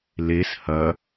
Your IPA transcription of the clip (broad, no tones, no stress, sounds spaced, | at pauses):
l e s h ɐ